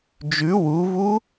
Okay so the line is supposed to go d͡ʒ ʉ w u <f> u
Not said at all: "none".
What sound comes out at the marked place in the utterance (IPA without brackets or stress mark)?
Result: v